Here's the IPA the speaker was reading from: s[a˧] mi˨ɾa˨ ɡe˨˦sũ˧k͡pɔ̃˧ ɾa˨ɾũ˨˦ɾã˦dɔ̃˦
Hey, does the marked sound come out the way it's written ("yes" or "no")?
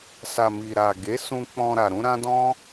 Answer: no